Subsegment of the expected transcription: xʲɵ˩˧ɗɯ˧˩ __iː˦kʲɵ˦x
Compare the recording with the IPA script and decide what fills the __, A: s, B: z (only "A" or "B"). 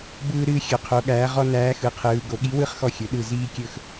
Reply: B